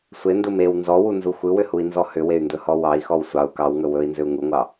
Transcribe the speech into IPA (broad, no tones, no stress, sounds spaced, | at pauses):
sʷ e n d ɯ m e w n z ɔ w u n z u xʷ ɯ w ʏ h u i̯ n z ɔ h ʏ w e y̯ n d ɵ h ɔ w ɑ i̯ x ɔ w sʷ ɑ u̯ k ɑ w ŋ ɵ w ɵ i̯ n z ʏ u̯ ŋ u ŋʷ ɑ